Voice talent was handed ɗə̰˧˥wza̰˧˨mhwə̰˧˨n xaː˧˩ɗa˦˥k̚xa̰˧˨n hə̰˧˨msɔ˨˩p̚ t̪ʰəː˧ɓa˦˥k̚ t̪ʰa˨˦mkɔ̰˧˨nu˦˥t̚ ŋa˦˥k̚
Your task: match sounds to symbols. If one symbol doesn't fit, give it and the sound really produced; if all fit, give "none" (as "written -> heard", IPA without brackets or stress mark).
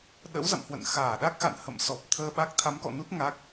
none